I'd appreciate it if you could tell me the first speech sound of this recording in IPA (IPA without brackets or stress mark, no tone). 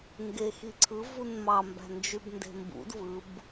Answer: ŋ